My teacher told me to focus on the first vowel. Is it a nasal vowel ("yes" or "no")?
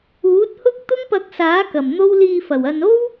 no